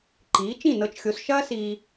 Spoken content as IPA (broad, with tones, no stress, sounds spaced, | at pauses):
ǃ iː˩˥ t͡ʃ ĩ˥˩ n ɤ˧ t͡ʃ xʲ o˩˥ s ʃ ɐː˥ s iː˧